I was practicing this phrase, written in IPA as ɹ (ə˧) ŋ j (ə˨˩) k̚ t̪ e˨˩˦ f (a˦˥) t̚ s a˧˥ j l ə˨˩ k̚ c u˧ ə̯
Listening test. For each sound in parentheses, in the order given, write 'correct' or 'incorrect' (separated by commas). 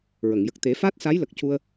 incorrect, correct, correct